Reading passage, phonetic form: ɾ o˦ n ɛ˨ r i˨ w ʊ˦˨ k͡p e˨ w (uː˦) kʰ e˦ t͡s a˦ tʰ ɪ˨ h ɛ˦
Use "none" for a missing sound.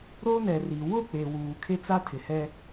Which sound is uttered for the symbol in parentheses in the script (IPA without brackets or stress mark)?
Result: uː˨